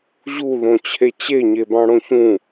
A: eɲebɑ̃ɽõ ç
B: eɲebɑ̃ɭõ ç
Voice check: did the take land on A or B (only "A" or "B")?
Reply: A